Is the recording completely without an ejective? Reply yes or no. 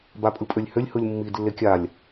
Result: no